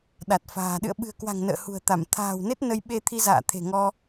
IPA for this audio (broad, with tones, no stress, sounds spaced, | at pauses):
ɗ a˨˩ t̚ f a̤ː˨˩ ɗ ɨ̰˧˨ ə̯ ɓ ɨ̤˨˩ ə̯ k w a̤˨˩ ŋ n ə̰ː˧˨ h ṳ˨˩ ə̯ t̪ a˧˩ m t̪ʰ a̤ː˨˩ w n e˦˥ t̚ n ə˧ j ɓ e˧ t̪ʰ i˧ z a̰ː˧˨ t̪ʰ e̤˨˩ ŋ ɔ˧